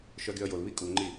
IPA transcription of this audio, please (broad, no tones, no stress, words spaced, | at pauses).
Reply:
ʃœɡyə̯jolβi kʼuŋ͡ǃi